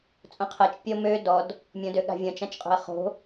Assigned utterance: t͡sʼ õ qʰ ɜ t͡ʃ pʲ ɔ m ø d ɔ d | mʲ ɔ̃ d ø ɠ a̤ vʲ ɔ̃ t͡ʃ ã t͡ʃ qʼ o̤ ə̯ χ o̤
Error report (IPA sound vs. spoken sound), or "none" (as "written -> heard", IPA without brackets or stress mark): none